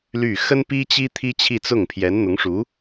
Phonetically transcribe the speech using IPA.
ly˥˩ xə˥npi˥t͡ɕi˥ t̪ʰi˥t͡ɕʰi˥˧t͡sʊ˥˩ŋ pʰjɛ˧˥nn̪ʊ˧˥ŋʂu˧˥

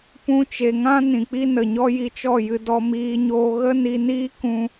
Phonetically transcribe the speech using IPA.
pũ˧t͡ʃe˨ ŋã˦ nĩ˨k͡pi˦nə˨ɲɔ˦ ji˧t͡ʃɔ˦˨jɨ˧ dɔ˧miː˧ɲoː˧ ɣə˦ni˧niː˦ kũ˧

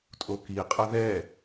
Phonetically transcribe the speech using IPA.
tʼoki qʼɤðɛ

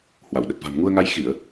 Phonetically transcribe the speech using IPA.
hwa˧˩wɗə˨˩t̚ va̤˨˩mŋu˧ə̯ŋa˧j xi˧˩˨ə̯

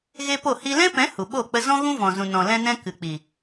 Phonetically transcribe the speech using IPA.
ɣe˦po˦˨hi˦ lɛ̃˦pɛ̃˨˦ hu˨ɓo˦˨k͡pə˦ zɔ̃˦ɣũ˦vɔ̃˨zũ˨ nɔ̃˨lɛ̃˧nɛ̃˧ kɨ˨k͡pi˨

